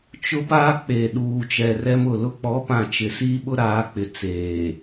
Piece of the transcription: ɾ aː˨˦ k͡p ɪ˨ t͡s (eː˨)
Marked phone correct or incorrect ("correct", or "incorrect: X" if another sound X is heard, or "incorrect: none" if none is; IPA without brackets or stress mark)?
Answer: correct